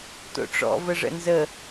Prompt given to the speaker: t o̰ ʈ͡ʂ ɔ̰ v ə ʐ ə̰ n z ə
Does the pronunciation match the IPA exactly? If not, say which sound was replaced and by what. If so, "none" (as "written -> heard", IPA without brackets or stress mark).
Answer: none